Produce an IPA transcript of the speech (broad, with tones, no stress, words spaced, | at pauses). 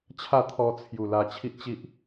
t͡ɕʰa˥˧ t̪ʰɔ˧t͡sʰju˨˩ la˧t͡ɕʰi˦ʔ t͡ɕi˦ʔ